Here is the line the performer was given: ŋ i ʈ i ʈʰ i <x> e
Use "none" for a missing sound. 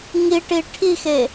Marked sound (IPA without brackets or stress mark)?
x